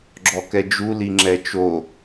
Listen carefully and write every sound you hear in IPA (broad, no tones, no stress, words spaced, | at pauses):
ɡ͡ǁɔkɛd͡ʒu liŋ͡ǁɛt͡ʃo